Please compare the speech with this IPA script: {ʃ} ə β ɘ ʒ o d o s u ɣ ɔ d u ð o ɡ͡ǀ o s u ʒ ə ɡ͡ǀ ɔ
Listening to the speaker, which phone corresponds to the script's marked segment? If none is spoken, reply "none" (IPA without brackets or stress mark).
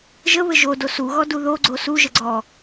ʒ